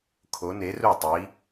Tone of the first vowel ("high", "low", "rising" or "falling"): rising